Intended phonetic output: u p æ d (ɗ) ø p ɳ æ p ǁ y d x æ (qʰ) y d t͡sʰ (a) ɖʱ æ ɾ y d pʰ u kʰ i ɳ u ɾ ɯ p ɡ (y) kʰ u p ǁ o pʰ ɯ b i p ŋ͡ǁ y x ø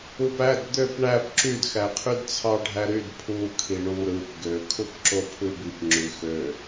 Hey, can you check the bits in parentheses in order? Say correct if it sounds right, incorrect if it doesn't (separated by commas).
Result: incorrect, correct, incorrect, incorrect